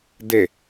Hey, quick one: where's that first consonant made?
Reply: tongue tip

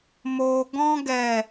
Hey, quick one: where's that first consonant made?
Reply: lips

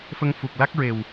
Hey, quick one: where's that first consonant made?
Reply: lips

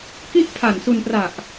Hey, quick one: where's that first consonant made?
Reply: velum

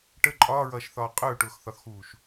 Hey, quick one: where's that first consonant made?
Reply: retroflex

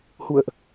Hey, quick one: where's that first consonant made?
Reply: throat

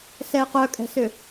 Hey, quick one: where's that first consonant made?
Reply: tongue tip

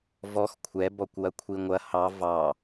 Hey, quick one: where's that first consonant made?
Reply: lips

